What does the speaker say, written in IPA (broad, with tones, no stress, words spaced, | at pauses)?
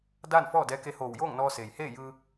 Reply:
daː˥˨nfɔː˥˨dɛː˧˥ ke˧hoː˧˩wjoː˥˨ŋnɔː˧ seː˩jheː˥˨ jɯː˧